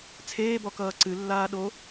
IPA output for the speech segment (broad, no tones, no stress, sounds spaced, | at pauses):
t͡sʰ eː b ɔ k ʌː ǀ ɨ lː aː ɗ o